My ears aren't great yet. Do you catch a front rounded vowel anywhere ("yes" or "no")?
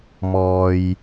no